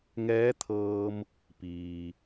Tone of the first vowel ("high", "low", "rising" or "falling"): rising